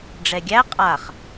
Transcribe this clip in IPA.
ɖ͡ʐɛɡʲæ qʼaχ

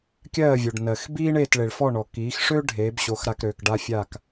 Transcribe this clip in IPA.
kʲɜː˥˩vʲo˩ɖ nɜ˩x biː˥ɳeː˥˩tɭe˩ɭ fɔ˥˩ɳɔ˩ kiː˩˥xʂø˥ ɖʱeː˩˥bɕo˩˥x ɾa˧kɾøː˩k ɖa˥fʲa˥˩k

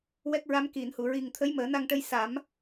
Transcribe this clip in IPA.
wɛ˦˥k̚ɹa˧˥m ki˨˩˨nhu˨˩˨ɹi˨˩ŋ t̪ʰə˧˥jməː˨˩˦na˧ŋʈə˧j sa˨˩˦m

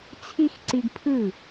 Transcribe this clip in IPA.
t͡sʰi˦xǀi˧ɡ pʰɯ˦˨

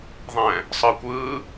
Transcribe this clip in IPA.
ðˤɛ̃ | sˤɯːkʷɯː

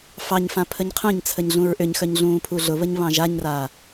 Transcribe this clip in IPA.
fɑɲ fãpʰəɲqʰœ̃ɲt͡sʰəɲ ɮũɹʔʏɲxœɲ ɮũːpʰuɮʊβəɲ βɑ̃ʒaɲra

